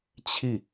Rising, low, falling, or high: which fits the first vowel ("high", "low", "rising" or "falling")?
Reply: falling